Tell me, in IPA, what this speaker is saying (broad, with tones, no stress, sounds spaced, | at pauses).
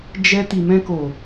d͡ʒ ɛ˧ t i˨ m ɛ̃˧ k o˨